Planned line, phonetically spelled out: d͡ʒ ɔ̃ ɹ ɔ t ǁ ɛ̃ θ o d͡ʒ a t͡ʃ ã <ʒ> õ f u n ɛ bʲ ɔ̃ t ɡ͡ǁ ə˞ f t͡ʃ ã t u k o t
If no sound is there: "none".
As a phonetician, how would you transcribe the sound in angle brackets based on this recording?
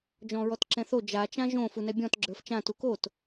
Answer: ʒ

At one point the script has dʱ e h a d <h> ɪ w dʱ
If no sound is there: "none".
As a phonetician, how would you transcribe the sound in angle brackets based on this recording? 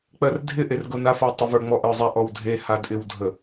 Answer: ʔ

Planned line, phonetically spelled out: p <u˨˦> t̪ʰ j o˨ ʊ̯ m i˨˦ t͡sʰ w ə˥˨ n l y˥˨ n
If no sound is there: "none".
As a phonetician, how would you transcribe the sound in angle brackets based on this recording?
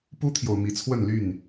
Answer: u˦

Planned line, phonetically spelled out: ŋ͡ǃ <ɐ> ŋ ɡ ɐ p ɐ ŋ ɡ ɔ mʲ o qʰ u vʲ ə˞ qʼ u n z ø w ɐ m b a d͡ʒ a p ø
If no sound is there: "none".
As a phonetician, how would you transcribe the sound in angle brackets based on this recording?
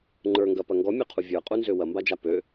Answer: ə˞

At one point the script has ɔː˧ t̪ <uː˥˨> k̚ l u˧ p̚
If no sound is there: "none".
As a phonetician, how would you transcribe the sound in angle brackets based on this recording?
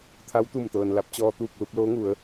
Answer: uː˥˨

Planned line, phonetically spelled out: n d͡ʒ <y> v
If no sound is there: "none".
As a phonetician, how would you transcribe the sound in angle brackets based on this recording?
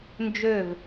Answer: ø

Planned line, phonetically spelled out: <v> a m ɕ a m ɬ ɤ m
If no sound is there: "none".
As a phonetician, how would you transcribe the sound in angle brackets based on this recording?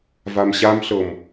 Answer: v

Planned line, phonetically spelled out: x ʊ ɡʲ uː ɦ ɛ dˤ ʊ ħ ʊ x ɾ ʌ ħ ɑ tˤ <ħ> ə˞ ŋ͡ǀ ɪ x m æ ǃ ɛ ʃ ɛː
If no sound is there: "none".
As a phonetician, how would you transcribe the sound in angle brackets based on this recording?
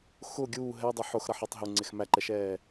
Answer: ɦ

